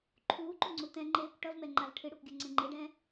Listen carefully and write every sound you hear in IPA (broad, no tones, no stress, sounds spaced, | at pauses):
ǃʰ uː ǃ u ŋ͡ǀ u t ɛ̃ ŋ͡ǃ eː kʷ ʈ ʌ v m ɛ ŋ͡ǃ a v ʈʰ ɨ ɽ ø kʷ ɡʲ o ŋ͡ǀ ẽ ŋ͡ǃ e ɖ ɛ̃